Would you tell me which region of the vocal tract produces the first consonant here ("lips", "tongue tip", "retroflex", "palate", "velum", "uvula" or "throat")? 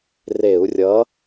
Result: tongue tip